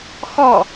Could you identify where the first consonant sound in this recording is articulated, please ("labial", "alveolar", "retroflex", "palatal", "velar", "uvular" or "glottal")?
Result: velar